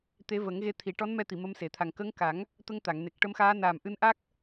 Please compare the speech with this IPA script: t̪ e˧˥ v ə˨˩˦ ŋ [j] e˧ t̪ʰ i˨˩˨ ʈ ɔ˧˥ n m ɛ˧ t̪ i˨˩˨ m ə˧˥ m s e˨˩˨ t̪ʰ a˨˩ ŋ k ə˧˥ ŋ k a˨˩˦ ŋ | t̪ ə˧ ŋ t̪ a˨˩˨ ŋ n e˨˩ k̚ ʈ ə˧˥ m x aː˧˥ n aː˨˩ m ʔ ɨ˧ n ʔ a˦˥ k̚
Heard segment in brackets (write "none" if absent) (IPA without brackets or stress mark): ɣ